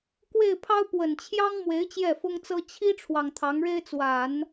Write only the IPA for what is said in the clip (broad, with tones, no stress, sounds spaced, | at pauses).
k w e˥˩ ɪ̯ pʰ ɑ˥ ʊ̯ p w ə˨˩ n t͡ɕʰ j ɑ˥ ŋ m w e˧˥ ɪ̯ t͡ɕ j ɛ˥˩ f ʊ˥ ŋ t͡s ɤ˥ t͡ɕʰ i˥ ʈ͡ʂʰ w ɑ˨ ŋ t̪ʰ ɑ˧˥ ŋ ɻ e˥ ɪ̯ t͡s w a˨˩˦ n